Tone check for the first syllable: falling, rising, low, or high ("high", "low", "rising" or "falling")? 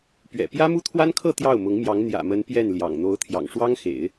low